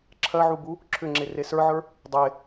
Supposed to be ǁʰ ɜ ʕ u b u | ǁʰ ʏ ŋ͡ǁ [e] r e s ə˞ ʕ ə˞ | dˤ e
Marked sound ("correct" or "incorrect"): correct